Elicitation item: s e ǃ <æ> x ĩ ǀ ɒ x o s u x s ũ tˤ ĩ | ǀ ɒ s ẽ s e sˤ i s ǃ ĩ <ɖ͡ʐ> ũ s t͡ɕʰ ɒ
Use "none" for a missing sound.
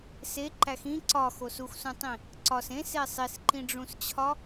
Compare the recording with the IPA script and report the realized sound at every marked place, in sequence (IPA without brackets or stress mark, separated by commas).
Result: æ, ɖ͡ʐ